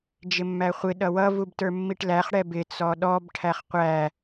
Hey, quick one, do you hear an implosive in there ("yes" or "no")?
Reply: yes